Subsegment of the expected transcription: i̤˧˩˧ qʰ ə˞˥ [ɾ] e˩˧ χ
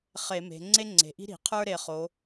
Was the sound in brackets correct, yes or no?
yes